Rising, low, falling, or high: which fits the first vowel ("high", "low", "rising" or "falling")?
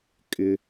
high